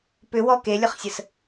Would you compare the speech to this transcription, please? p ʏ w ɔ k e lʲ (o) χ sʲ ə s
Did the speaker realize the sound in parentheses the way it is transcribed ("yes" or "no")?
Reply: no